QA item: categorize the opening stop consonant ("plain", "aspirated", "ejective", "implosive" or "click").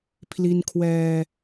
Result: aspirated